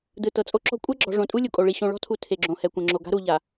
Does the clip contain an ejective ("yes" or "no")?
yes